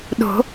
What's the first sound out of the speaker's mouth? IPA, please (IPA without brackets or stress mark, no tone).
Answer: ɗ